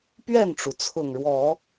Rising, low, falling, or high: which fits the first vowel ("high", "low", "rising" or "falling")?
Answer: falling